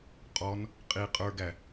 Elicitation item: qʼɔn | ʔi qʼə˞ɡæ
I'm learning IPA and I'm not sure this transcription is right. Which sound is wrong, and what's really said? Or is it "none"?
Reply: ʔ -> qʼ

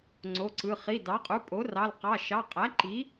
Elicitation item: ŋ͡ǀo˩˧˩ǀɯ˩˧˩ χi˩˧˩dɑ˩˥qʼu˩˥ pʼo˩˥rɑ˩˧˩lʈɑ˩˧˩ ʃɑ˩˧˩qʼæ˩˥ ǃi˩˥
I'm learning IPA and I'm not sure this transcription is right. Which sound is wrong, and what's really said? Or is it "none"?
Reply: ʈ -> q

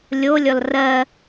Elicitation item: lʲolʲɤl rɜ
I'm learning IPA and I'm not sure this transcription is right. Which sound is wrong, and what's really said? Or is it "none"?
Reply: ɤ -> ɔ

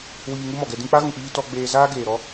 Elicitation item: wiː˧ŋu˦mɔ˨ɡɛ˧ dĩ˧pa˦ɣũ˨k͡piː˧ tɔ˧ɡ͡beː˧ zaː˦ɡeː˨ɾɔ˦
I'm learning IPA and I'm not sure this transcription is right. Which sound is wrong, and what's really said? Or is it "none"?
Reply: p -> k͡p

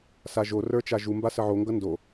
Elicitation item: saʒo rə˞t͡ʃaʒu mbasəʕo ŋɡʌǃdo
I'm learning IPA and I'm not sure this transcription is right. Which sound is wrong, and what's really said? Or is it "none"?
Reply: ǃ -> n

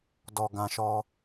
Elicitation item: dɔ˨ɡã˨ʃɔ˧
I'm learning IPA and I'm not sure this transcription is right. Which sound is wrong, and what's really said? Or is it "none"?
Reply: none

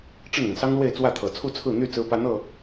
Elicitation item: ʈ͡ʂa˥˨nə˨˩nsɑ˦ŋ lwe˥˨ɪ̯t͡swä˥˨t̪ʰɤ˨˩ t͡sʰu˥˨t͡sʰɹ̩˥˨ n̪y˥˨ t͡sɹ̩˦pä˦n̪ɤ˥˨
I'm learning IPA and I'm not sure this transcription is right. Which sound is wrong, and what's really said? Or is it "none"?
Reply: a˥˨ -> ə˥˨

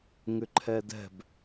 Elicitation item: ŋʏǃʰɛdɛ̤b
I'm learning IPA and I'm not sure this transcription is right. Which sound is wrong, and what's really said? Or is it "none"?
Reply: none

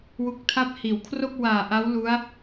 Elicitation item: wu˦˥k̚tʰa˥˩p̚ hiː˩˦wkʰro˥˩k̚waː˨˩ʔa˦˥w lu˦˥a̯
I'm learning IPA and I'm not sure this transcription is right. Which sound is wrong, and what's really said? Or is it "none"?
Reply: none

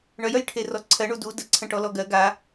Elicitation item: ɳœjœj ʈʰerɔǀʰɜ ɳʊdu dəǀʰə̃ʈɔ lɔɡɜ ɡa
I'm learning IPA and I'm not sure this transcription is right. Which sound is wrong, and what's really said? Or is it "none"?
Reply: ʊ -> u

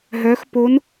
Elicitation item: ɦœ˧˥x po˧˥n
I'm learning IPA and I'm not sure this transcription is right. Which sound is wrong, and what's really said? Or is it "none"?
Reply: none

